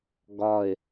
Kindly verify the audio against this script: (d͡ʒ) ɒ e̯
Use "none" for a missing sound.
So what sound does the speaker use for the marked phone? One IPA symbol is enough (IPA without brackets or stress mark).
ɡ